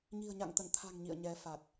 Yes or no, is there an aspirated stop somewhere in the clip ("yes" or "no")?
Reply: yes